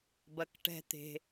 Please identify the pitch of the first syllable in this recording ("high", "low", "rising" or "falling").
high